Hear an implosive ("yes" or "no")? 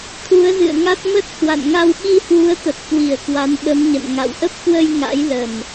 yes